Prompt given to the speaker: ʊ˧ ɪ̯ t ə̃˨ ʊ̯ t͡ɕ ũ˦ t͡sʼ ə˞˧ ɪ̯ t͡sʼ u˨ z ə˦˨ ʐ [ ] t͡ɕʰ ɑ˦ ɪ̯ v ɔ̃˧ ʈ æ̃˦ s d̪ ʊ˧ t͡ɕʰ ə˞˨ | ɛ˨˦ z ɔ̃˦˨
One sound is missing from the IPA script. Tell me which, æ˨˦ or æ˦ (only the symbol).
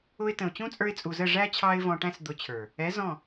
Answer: æ˦